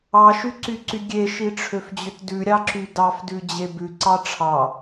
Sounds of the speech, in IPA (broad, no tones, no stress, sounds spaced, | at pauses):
ɑ ʃ y ǀ y ǀ y ɡʲ e ʃ i ʈ͡ʂʰ ø f d͡ʑ ø t d ʉ ɾʲ ɑ ǁ y d ɑ f d ʉ d͡ʑ e b ʉ ǀ ɑ ʈ͡ʂʰ ɑ